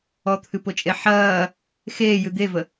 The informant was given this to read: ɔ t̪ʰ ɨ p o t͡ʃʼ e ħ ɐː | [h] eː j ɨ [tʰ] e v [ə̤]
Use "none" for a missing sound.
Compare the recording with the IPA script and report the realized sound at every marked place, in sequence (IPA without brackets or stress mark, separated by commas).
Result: x, d̪, ə